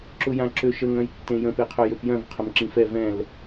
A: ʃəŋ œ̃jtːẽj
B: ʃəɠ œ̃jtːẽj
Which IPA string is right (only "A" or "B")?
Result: A